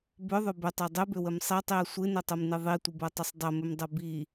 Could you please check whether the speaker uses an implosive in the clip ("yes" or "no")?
no